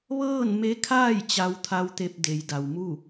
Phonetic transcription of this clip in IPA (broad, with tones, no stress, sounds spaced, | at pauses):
ʋ ɤː˥˨ n m e˧˥ kʰ aː˥˨ j t͡ɕ a˧˥ w t̪ʰ a˧˥ w t̪ e˧ p̚ d e˩˧ j d a˩ w m u˥˨